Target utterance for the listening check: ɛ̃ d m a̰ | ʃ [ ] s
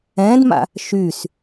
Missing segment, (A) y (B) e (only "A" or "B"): A